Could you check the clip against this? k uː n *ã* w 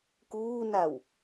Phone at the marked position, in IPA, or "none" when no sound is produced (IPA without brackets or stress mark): a